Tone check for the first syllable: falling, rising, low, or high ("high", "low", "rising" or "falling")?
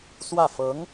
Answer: falling